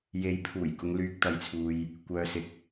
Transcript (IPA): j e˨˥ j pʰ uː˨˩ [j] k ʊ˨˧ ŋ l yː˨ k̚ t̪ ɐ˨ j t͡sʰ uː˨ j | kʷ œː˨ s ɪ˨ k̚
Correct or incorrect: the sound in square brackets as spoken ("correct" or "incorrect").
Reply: correct